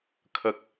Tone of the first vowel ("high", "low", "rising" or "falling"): high